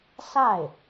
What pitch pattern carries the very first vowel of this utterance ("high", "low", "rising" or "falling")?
falling